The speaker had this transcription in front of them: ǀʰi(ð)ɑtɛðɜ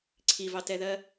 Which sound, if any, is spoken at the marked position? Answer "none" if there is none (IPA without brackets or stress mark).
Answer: v